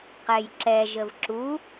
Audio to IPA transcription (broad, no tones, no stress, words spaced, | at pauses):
qɛjǁɛ ʒəvǁu